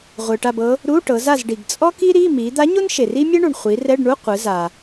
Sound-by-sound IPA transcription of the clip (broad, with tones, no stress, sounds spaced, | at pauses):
ʁʷ ɯ˩ ʈ a˦˨ b ɤ˧˥ | ɾ u˧˥˧ ʈ ɤ˩˧ z a˦˨ z ɖ i˩ ɡ t͡sʼ ɔ˥ k i˥ ɾ i˧˥˧ m i˩˧ d̪ a˧˥ ɲ o˥ n ʃ e˩ r i˥ mʲ ɛ˥ ɳ u˩ ɳ χʷ i˩˧ r ɛ˧˥˧ ɖ ɳ u˧˥˧ qʷ ɯ˩˧ z a˩